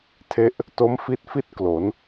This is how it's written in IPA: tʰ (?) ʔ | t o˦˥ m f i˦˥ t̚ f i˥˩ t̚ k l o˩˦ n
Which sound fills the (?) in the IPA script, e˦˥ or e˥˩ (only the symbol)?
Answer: e˦˥